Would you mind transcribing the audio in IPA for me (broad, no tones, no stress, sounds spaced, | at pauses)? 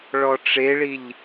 ɭ ɔ ʈ͡ʂ e ɭ i ʎ